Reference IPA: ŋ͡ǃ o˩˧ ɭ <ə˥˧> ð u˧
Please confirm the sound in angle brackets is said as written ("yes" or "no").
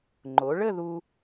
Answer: yes